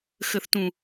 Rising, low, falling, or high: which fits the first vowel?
low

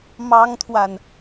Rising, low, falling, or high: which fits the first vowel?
high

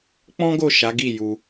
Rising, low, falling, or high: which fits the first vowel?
high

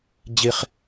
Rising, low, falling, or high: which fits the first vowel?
high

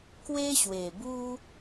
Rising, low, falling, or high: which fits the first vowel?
high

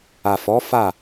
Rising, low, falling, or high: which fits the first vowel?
low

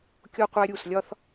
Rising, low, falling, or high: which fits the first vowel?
high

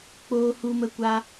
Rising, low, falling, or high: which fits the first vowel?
high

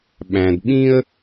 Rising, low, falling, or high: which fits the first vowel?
low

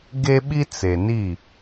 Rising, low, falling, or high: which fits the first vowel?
high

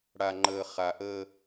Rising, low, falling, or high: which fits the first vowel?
low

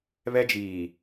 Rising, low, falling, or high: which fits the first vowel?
high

